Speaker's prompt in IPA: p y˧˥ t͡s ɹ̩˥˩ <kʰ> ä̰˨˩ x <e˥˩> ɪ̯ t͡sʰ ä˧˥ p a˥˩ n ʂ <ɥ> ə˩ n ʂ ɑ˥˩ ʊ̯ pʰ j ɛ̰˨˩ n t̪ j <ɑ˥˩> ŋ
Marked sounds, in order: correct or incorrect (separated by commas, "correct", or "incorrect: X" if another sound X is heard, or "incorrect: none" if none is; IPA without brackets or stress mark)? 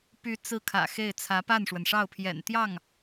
correct, correct, incorrect: w, correct